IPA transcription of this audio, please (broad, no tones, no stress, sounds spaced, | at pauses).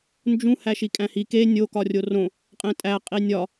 n d͡ʒ ũ h æ ʃ i kʼ æ̃ h i k e nʲ o k ɒ rʲ o r õ | qʼ ẽ tʼ æ qʼ i nʲ ɒ